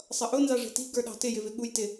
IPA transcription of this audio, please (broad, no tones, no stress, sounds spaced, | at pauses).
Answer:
sˤ ʌ ʔ ʊ n z ɑ ʐ ɛ̤ t i̤ ɡ ə˞ ɗ ɑ̤ t ɪ j ɪ v ɪ ɠ u j t ɪ